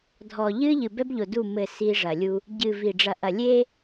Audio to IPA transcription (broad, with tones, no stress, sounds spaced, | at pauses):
dʱ ɔ˨ ʎ ɨː˦ ʎ ɨ˨ b ɛ˦ b ʎ o˨ d u˦˨ m ɘ˦˨ s i˦ ʐ ɐ˨ lʲ u˦ | ɟ ɨ˨ v i˨ ɖ͡ʐ ɐ˨ ʔ ɐ˨ lʲ e˦